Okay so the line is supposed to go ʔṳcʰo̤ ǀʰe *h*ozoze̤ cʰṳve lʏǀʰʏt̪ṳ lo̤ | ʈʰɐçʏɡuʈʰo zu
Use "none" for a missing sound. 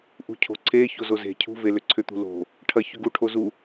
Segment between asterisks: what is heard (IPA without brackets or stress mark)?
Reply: ç